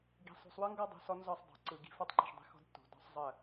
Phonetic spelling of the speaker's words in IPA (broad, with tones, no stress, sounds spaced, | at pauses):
ɡ i̤˨ sˤ o̤˨ sˤ w ɯ˦ ŋ ɡ ɒ˦ dˤ o̤˨ s ɔ˦ n z ɒ˦˨ sˤ dˤ o̤˨˦ ǀ ɯ˨ ɡ i̤˦ f ɔ˦ tˤ ǃ i̤˨ ʃ dˤ i̤˦ x ɔ̤˦ d tː o̤˨ d ɔ̤˦ sˤ zˤ ə˦˨